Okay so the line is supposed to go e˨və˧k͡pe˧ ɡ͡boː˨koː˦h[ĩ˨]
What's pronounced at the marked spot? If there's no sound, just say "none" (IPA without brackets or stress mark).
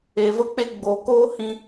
ĩ˧